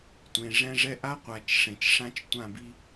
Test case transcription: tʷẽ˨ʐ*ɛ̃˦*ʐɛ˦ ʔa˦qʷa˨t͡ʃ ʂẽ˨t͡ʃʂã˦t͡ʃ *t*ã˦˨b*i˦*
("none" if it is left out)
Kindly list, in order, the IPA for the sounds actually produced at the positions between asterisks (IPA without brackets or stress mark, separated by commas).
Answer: ɛ̃˦, tʷ, i˦